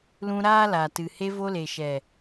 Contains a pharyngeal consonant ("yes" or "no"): no